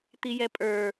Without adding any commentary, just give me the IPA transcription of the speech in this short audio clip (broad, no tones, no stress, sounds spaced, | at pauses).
t̪ i j ɛ pʼ ə˞